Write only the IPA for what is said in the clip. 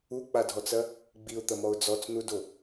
u k͡p a dʱ ɔ t͡s ɐ | ɡ͡b i ʊ̯ t̪ ɐ m ɔ ʊ̯ d͡z ɔ t͡s n u d o

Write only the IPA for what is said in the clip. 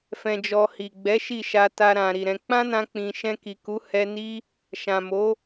f ɛ̃˧ d͡ʒ ɔ˧ h i˨ ɡ͡b ɛ˨˦ ʃ i˦˨ ʃ a˧ t a˧ ɾ ã˨ ɾ i˨ ɾ ɛ̃˧ k͡p ã˦ n ã˧ k͡p ĩ˨ ʃ ɛ̃˧ k i˨ k u˨˦ h ɛ˧ n i˦ | ʃ ã˨ m o˨˦

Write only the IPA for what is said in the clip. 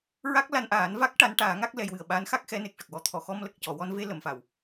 ɹ a˦˥ k̚ l a˧ n ʔ aː˨˩˦ n v a˦˥ k̚ ʈ a˧˥ n ʈ aː˨˩˦ ŋ a˦˥ k̚ l ɛ˧ j w ɨ˨˩ ə̯ ɓ a˧˥ n x a˦˥ k̚ x ɛ˧˥ n e˨˩ k̚ ʂ ə˨˩ k̚ w ɔ˧ t̪ʰ ɔ˨˩˨ x ɔ˧ m l ə˨˩ k̚ c ɔ˨˩˨ w ɔ˧ n v e˧ l ə˨˩˨ m f a˨˩˨ w

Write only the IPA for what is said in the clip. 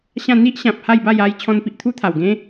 ɕ ã˥˧ n̪ i˦ ʔ ɕ ã˨ p̚ h a˥˧ j b a˥˧ j a˦ j t͡ɕʰ ɔ̃˧ n p i˨ ʔ t̪ʰ u˦ t̪ʰ a˨˩ w ɡ ẽ˦

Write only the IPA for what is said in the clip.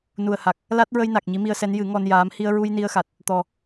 n u˨˩ ə̯ h a˨˩ k̚ | l a˦˥ t̚ ɹ ə˧ j n a˨˩ k̚ ɲ i˧˥ m i˧ ə̯ s ɛ˧˥ n j ɨ˨˩˦ ŋ ɔ˧ n j aː˧˥ m h i˧ ə̯ ɹ u˧ j n i˧ ə̯ x a˨˩ t̚ | t̪ ɔ˨˩

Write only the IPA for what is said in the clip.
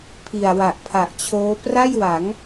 pʰ i˨˩ a̯ w a˨˩ ʔ pʰ a˨˩ ʔ t͡ɕʰ oː˦˥ p r a˥˩ j w a˩˦ ŋ

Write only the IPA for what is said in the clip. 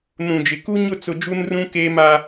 n ũ˨ d͡ʒ ɪ˨ k u˦ ɲ ʊ˦˨ t͡s ʊ˨ d͡ʒ u˦ n r ũ˦ k eː˦ m a˦

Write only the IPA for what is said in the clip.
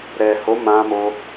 ɾ ɛ˨ h o˨˦ m ã˧ m o˧

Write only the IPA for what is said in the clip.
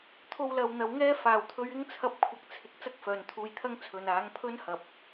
t̪ʰ o˧ w l ɐ˨ w n̪ ɐ˨ w ŋ ɛː˥ f aː˧ w t̪ʰ ɵ˥ ɥ ɪ˥ ŋ t͡sʰ ɐ˧ p̚ kʷʰ ɐ˧ k̚ t͡sʰ ɪ˨˥ k̚ t͡s ɐ˥ k̚ f œː˨ n t̪ʰ uː˧ j t̪ʰ ɐ˥ ŋ t͡sʰ ɵ˨ n aː˨˥ ŋ pʰ ɵ˥ n h ɐ˨ p̚

